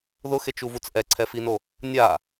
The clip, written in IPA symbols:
ð ʊ x e t͡ʃ u v u t͡s ʔ ɛ ǀʰ ɛ f i n o | nʲ a

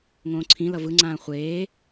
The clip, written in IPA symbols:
ŋ õː ǀʰ ĩ l ʌ v ɯ ŋ͡ǀ ãː χʷ eː

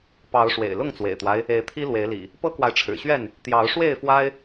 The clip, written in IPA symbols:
p ɑ˨˦ ʊ̯ ʂ w ḛ˨˩ ɪ̯ l ʊ˥˨ ŋ t͡s w ḛ˨˩ ɪ̯ t̪ w a˦ ɪ̯ | e˨˦ ɪ̯ t̪ʰ i˦ l w e˨˦ ɪ̯ l ḭ˨˩ | p ɤ˦ k w a˨ ɪ̯ ʈ͡ʂʰ ɻ̩˨˩ ɕ ɥ ɛ˥˨ n | t̪ j ɑ˨˦ ʊ̯ ʂ w e˥˨ ɪ̯ f w a˦ ɪ̯

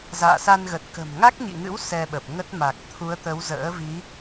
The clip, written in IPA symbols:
z a̰ː˧˨ s a˧ n ɣ ə˨˩ t̚ k ə̤˨˩ m ŋ a˦˥ k̚ ɲ ḭ˧˨ ŋ ɨ̰˧˥ w s ɛ˧ ɓ ə˨˩ p̚ ŋ ə˦˥ t̚ m a˨˩ k̚ t̪ʰ u˨˦ ə̯ t̪ ə˨˦ w z ə̰ː˧˥ v i˨˦

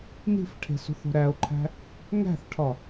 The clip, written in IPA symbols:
n i̤ f ʈʰ e̤ s ṳ θ o̤ ɾ æ o̯ ǃʰ æ̤ | ŋ æ̤ θ ʈʰ ɒ

